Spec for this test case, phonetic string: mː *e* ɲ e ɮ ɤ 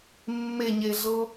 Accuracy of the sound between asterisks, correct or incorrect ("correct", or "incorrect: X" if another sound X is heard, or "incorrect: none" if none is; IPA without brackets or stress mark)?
correct